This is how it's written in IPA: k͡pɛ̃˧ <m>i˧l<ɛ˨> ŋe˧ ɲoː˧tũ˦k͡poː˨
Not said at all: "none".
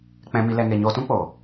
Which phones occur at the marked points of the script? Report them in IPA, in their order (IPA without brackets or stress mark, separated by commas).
m, ɛ˧